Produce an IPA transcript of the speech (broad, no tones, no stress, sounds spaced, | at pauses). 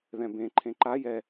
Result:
ð ɛ̃ b ẽ ǃʰ ẽ ǃ a j ɛ